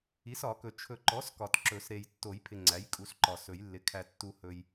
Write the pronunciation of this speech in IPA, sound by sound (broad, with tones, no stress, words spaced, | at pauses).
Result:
i˩˥sɒ˨˩˦kɵ˨ t͡ʃʰɵ˨ǃɔ˩˥s kɒ˨tǁɵ˨˩˦s ɾe˨j tːo˨˩˦jpʰɪ˨ ŋ͡ǀæ˩˥jkʼu˩˥sǃɒ˨ sɵ˨˩˦jlːɪ˩˥ kʰæ˨tːu˨hɵ˨j